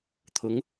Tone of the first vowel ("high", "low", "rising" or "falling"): rising